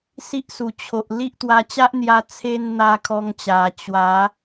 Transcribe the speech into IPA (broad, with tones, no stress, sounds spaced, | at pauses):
s i˦ ʔ s u˨˩ t͡ɕʰ o˨ ʔ l i˦ ʔ t̪ w a˧ t͡ɕ a˦ ʔ n̪ j a˧ t͡sʰ e˧ n n̪ a˧ kʰ ɔ˧ ŋ t͡ɕ a˨˩ t͡ɕ w a˨˦